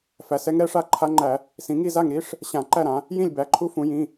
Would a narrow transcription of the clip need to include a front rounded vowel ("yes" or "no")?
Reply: no